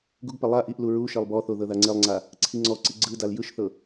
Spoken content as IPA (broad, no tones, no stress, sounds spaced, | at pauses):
ɡ u ɡ p ɛ lˠ a ʔ i ʔ l u ɹ u ʃ e lˠ b ɔ θ o ð ɤ ð a ŋ͡ǀ e lˠ ŋ͡ǀ a | ǀʰ i ŋ͡ǀ ɔ ǀ i ɡ͡ǀ ɯ d a l j ɯ ʃ θ ɤ